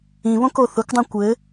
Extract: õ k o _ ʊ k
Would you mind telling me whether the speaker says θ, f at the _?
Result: θ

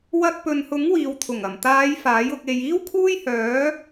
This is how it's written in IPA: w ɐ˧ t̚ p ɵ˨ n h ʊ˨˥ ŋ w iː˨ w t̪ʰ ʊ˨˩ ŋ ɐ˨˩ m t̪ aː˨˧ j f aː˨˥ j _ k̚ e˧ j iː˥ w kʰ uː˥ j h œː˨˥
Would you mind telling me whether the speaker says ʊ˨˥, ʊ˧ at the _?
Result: ʊ˧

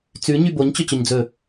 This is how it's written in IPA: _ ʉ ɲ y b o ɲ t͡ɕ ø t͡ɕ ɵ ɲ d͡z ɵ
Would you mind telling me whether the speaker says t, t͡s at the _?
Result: t͡s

